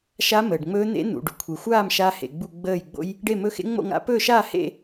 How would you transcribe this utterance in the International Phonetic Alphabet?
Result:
ʃ a˦˥ m əː˨ ɖ ŋ͡m ɵː˦˥ n̪ ḛ˦˥ n̪ ṵ˨ ɖ u˨ kʷʰ e˨ xʷ aː˥˧ m ʃ a˦˥ h ḛ˨ ɡ͡b u˥˧ ɡ͡b əː˥˧ j ɡ͡b o̰˦˥ j | ɖ e˥˧ m ɵ˦˥ x ḛ˦˥ ŋ͡m o̰˥˧ ŋ a̰˦˥ p ɵː˥˧ ʃ aː˥˧ h ḛ˥˧

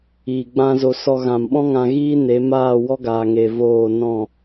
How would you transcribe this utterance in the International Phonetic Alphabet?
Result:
iː˨ ɡ͡b ã˦ z o˧ s ɔ˧ ɣ ã˨ m ɓ ɔ̃˦ ŋ ã˧ ɣ iː˦ n e˨˦ m aː˦˨ w ɔ˦ ɡ aː˨ ŋ e˨ v oː˦˨ n ɔ̃˦˨

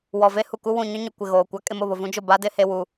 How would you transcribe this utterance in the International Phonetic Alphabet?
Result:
w ɔ˨ v e˦ h u˨ k u˦ w ũ˨ ɲ ʊ˦ ɲ ʊ˨ kʷ ɪ˨ ɣ oː˨ kʷ a˦ kʼ ɪ˦ m ʊ˨ β ʊ˨ v ũ˦ d͡ʒ ʊ˦˨ b a˦ d ɪ˦ h e˦ w u˦

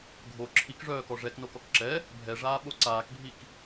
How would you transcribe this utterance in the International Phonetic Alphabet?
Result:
ɡʱ o ǁʰ i k ʐ œː k ɔ ʐ ɛ k n o k ɔ k ǁ ɛ | bʱ ɛ ʐ aː ɓ o ǀ aː k bʱ i k

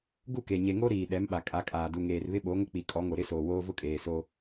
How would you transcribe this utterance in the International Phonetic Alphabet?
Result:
ɡ u˦˨ k e˨ ɲ e˨ ŋ o˦ ɾ iː˨ ɗ ɛ˨˦ m ɓ a˨ kʼ a˨˦ kʼ aː˨ d u˨ ŋ eː˨ r β ɪ˦ ɓ o˨˦ ŋ ʊ˦ k͡p i˨ kʼ ɔ˨˦ ŋ o˨ ɾ ɪ˦ s oː˨ w oː˦ v ʊ˦ kʼ eː˨ s o˦

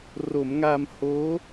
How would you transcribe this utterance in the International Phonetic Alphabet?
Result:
r o˩˦ m ŋ a˧ m h oː˦˥

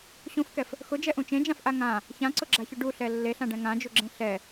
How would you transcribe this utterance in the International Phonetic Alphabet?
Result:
ɕ ũ f k ɛ f | x ʊ d͡ʒ ɛ ʔ ũ t͡ʃ ẽ d͡ʒ ã f ʔ a ŋ ã | ç ã ǀ ʊ ɡ͡ǁ a ç ʊ ɖ u ɬ ɛ lː e ɬ ã ɖ ɛ̃ ŋ ã d͡ʒ u ɡ͡ǁ ẽ ɬ ɛ

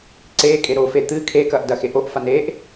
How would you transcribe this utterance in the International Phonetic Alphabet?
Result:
ǀ eː kʼ e ɾ oː f e t̪ ɨ kʰ e k ɐ ʔ d ɐ x e ʔ o ʔ f a n eː ʔ

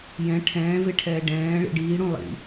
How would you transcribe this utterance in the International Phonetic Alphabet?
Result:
j ɛ̃ ʈʰ ɛ̃ː v e ʈʰ ɛː ɖ ɛ̃ː ɭ ḭ ɖ iː ɽ ũ lˠ ḭ

